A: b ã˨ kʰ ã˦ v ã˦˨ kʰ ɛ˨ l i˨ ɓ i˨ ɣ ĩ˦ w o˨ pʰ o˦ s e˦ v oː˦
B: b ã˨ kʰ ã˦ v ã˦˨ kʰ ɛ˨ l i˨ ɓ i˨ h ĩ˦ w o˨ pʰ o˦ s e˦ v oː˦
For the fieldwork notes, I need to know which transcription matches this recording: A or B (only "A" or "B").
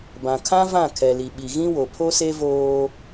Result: A